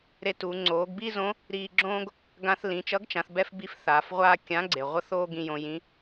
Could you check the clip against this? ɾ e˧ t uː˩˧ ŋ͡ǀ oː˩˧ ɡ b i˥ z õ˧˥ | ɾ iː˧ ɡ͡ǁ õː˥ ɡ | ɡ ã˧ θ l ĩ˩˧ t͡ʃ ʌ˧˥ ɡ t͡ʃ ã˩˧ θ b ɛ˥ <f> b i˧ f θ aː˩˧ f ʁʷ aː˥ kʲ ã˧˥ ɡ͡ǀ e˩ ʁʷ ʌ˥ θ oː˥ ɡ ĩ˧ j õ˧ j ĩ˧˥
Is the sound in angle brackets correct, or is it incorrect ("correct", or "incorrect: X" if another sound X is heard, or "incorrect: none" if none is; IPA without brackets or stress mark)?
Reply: correct